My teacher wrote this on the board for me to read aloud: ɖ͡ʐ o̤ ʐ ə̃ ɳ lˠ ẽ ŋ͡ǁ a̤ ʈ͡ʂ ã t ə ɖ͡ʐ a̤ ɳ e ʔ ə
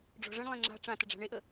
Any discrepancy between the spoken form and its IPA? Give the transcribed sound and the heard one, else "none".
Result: o̤ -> ɔ̤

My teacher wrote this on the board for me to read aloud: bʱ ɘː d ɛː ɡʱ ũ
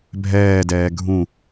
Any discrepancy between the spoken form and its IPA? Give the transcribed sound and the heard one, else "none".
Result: ɘː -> ɛː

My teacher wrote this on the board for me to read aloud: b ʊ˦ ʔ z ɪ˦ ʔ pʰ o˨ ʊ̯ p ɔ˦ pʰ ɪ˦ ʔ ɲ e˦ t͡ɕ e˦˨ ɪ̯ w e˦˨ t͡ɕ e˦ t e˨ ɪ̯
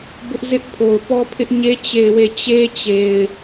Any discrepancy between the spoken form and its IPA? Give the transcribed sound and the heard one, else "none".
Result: t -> t͡ɕ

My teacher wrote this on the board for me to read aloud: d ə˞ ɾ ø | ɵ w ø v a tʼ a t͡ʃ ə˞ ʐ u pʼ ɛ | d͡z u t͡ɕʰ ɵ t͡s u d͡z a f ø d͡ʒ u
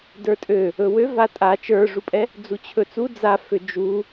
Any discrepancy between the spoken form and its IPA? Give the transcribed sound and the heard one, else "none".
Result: ɾ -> tʼ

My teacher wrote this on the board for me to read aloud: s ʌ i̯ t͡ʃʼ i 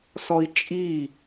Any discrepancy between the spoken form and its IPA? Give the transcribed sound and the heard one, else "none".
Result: ʌ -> ɔ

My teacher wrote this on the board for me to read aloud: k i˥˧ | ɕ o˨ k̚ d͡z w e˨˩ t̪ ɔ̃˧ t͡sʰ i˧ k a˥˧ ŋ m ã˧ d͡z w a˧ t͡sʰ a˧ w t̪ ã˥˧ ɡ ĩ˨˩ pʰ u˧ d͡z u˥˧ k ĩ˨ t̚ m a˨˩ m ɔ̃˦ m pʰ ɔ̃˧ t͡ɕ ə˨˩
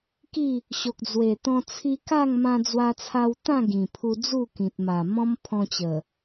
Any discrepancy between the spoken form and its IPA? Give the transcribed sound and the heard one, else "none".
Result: none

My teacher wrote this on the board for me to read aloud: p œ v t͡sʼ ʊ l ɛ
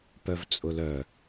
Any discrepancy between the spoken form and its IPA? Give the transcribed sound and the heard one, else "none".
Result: ɛ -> œ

